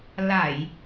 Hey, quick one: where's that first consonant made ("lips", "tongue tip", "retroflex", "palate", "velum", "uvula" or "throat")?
tongue tip